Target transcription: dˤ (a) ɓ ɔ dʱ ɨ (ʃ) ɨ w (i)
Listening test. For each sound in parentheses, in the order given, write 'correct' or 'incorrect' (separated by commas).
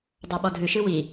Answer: correct, correct, correct